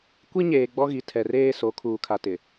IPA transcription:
kʷ i˦ ɲ eː˨ ɡ͡b ɔ˦ ɣ i˨ tʰ ɛ˨ r eː˦ s o˨˦ kʰ uː˨ kʰ a˨ t ɪ˨

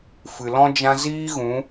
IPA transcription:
f ɨ˨ l ɔ̃˦ d͡ʒ ã˦ z iː˦ ɣ ũ˨˦

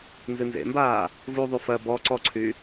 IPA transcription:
n z ɨ n z ḛ m b aː | v u ðˤ u f ɜ b ɔ ǀ ɔ ǀʰ y

